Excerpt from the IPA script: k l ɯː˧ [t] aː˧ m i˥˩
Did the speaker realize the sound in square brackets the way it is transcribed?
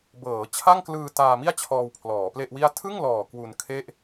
yes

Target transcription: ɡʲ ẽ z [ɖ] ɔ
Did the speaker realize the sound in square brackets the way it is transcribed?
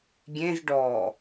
yes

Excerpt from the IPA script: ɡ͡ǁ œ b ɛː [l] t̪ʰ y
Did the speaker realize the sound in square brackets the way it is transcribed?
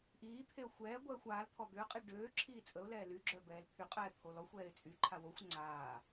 yes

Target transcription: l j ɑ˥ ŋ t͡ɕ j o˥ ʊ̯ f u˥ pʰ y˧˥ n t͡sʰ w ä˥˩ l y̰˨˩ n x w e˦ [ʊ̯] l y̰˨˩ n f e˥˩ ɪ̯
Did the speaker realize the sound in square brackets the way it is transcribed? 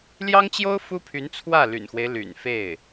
no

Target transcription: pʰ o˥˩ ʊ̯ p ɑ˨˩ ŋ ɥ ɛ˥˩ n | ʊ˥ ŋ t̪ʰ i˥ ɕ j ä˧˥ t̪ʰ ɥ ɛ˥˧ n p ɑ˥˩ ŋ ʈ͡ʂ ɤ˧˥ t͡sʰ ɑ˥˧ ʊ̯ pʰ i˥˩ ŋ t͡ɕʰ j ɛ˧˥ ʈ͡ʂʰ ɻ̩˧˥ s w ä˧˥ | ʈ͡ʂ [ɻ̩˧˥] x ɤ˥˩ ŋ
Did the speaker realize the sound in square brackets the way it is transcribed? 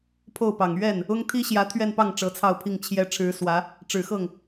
no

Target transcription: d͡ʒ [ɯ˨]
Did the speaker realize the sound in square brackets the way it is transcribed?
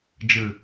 yes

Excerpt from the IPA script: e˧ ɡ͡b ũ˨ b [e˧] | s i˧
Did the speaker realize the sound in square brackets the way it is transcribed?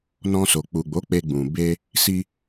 yes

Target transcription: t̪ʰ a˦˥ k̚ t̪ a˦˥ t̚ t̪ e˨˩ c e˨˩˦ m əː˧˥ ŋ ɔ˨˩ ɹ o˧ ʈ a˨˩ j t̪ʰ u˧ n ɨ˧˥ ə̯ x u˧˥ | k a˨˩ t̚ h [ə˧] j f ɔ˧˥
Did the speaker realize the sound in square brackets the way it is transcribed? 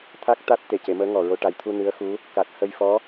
yes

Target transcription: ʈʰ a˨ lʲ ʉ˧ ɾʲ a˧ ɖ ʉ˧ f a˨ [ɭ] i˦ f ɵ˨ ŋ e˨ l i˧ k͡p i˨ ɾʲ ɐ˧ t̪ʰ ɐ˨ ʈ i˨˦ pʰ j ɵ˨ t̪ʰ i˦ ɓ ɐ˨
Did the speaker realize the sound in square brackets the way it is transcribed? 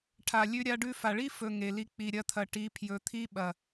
yes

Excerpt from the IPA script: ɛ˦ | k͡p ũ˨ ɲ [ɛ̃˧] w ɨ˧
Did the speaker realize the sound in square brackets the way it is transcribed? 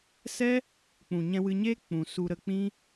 yes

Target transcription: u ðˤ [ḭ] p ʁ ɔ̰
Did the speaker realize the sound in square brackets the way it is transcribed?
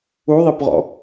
no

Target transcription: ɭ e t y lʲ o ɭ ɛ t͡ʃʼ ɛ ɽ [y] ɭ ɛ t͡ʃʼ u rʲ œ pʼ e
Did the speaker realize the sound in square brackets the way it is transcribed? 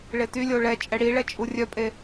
no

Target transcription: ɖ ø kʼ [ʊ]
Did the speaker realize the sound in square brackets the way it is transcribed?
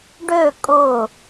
yes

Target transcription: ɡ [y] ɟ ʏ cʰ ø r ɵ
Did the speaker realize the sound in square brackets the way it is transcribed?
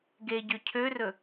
no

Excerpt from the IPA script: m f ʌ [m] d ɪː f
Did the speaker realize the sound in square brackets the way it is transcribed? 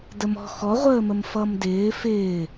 yes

